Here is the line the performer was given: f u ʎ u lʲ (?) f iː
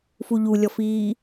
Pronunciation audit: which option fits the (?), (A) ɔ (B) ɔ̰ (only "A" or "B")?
A